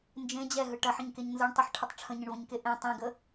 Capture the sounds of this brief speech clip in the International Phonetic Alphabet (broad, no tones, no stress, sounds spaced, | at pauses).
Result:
n d͡ʒ ẽ d͡ʑ ɛ ɦ ɯ ʈ ɐ ħ ə̃ ɲ k e ɲ n z ɯ ɳ tˤ ə ħ ʈʰ ə tˤ ʈ͡ʂʰ ə̃ ɲ ə̃ ɳ v ə̃ ɲ k e ʔ ẽ tˤ ẽ ɡ ə